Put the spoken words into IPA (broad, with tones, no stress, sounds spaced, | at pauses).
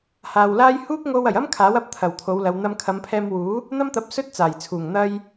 h aː˨ w l aː˥ j h uː˥ k̚ ŋ o˧ w ɐ˨˩ j ɐ˥ m kʰ aː˨˥ w ɐ˧ p̚ t̪ʰ ɐ˨˩ w t̪ʰ o˨˧ w l ɐ˨ w n̪ ɐ˧ m kʰ ɐ˨˧ m pʰ ɛː˧ m w uː˨˥ | n̪ ɐ˥ m t̪ ɐ˨˥ p̚ s ɵ˥ t̚ t͡s aː˨˩ j t͡sʰ uː˨˩ ŋ n̪ ɐ˥ j